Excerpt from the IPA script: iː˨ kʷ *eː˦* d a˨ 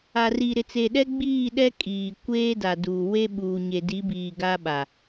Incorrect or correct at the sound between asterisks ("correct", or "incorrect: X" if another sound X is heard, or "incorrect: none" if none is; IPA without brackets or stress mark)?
correct